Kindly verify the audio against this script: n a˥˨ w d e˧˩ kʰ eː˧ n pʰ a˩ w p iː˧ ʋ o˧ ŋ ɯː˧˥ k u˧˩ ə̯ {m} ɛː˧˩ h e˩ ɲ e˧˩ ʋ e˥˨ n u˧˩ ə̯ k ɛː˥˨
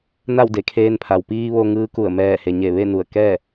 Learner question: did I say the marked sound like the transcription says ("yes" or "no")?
yes